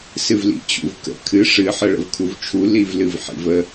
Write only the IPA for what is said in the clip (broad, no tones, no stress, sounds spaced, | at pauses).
s ɨ v l ḭ t͡ɕ ṵ v k ə̰ kʰ ɨ ʂ ɨ ħ ə ɭ ə̰ v kʰ u v t͡ʃʰ u l i v l ɨ v ħ ḭ v ə